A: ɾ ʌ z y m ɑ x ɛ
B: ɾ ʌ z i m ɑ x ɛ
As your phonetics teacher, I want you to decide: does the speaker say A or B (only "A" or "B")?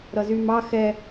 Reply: A